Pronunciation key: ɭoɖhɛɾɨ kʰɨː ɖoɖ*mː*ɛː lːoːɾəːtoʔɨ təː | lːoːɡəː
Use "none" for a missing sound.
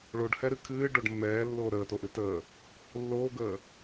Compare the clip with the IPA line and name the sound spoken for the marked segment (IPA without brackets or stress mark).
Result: mː